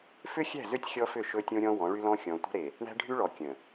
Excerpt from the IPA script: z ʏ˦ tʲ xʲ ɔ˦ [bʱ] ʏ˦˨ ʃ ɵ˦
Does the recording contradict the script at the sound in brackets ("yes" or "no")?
yes